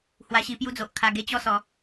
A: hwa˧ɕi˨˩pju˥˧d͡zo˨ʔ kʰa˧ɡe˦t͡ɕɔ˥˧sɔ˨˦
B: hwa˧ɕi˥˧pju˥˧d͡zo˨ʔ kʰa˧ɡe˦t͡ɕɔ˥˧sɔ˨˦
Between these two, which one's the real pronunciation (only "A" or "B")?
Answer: B